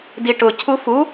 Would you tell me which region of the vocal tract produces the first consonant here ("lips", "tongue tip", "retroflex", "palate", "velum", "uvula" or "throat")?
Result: tongue tip